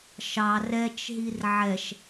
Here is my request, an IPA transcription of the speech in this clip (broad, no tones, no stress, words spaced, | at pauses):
ʃɑ rɛt͡ʃɦir ʕɛʃ